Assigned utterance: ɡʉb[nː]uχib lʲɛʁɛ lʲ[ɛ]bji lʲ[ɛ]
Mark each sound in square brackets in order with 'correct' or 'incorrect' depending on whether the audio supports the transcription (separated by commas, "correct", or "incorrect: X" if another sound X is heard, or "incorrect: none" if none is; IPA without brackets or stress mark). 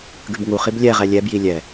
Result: incorrect: ŋ, correct, correct